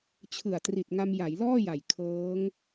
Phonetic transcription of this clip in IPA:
t͡ɕʰɯ˨˩a̯tri˨˩t̚ŋa˧m ja˩˦jlɔː˥˩ja˨˩j kʰɤː˦˥ŋ

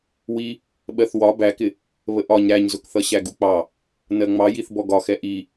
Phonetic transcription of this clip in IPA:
wi | ɓɜθwɒ bækɪ | βəʔɒɲ ɾæɲzʊkθʌ ɕæɡuk͡pɑ | nɜŋ͡mɑ jiθbɔɡɒxɛ ʔi

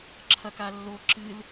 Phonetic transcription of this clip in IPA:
ǁʰɐkalːo ǁɨl

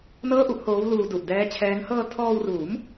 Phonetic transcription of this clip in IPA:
nɤː˥˩ʔu˥˩ʔhoː˦˥wluː˧ du˨˩ʔdɛː˦˥t͡ɕʰɛː˦˥ŋ hɤː˧tʰɔː˧wruː˩˦m

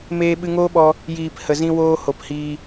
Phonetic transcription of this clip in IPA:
meː˧ ɓɨ˧ŋoː˦ɓɔ˧ | jiː˨p hə˨zĩ˧woː˧ ho˨phiː˧

